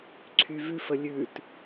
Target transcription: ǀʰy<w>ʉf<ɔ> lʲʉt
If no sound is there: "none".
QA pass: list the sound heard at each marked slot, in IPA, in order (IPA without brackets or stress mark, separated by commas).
v, ə